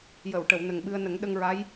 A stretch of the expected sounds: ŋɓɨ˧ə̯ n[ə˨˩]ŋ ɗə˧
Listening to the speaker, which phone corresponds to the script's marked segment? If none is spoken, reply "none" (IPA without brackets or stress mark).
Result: ə˨˩˦